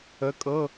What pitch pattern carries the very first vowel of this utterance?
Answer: rising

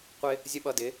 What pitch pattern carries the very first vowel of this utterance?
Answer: high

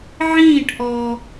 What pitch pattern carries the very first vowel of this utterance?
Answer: falling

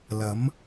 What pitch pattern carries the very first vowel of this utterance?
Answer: rising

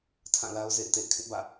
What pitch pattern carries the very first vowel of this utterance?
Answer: falling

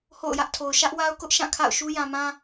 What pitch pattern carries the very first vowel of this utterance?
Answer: falling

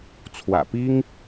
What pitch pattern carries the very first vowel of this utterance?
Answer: low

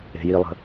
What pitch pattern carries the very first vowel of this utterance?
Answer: low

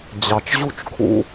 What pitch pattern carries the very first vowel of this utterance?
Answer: low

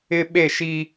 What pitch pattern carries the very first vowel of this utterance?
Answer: high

